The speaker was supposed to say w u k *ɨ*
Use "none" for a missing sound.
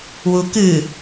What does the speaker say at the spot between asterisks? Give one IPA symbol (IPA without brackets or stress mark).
ɨ